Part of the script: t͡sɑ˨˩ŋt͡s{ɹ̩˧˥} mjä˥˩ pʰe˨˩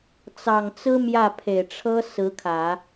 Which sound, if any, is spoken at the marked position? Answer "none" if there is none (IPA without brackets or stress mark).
ɹ̩˥